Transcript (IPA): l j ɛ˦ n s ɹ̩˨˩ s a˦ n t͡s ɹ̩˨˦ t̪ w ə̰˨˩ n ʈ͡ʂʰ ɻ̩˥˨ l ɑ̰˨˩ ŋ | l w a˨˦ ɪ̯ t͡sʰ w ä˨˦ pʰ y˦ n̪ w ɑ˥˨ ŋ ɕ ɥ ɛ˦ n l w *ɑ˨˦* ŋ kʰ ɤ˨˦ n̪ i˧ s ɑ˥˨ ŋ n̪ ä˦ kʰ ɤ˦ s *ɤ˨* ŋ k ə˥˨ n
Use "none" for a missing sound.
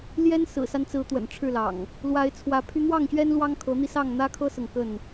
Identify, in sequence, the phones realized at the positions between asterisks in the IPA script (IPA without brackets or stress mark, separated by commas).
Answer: ɑ˦, ɤ˨